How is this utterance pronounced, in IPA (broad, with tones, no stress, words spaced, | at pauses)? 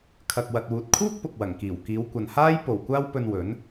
kʰɐ˨k̚wɐ˨t̚wuː˨t̚kʰuː˥k̚ pʊ˨k̚wɐ˨˩ŋkiː˨˩w kiː˨˧wkʷɐ˨n haː˥jpo˨˩w kʷaː˥wpɵ˧nwɵ˨˥n